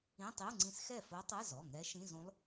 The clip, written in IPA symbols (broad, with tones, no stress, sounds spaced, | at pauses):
ĩ˧˥˧ tˤ i˧˥˧ u̯ ŋ͡ǀ ĩ˧˥ s x ɛ˥˩ f o˧˥ tˤ ɛ˧˥˧ z ɔ˩˧˩ ŋ ɛ˧˥ ʃ ĩ˧˥˧ z ũ˧˥ lˠ